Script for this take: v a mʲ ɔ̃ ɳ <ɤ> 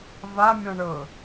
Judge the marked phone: correct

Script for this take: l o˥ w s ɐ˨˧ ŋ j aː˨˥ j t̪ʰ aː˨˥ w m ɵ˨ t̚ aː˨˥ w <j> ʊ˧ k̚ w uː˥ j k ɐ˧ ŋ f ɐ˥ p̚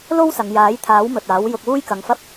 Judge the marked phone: correct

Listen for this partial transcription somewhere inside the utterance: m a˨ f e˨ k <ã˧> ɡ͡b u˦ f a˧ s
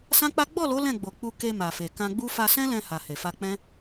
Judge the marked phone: correct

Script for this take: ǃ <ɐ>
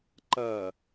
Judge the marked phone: correct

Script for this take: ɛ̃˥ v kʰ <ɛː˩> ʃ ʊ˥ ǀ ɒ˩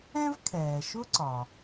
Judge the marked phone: correct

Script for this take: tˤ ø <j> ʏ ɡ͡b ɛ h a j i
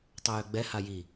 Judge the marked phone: correct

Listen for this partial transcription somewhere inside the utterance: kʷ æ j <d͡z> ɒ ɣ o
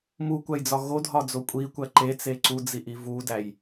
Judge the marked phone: correct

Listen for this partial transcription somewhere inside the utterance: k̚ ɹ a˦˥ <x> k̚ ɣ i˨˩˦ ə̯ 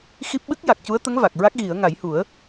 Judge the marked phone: incorrect: none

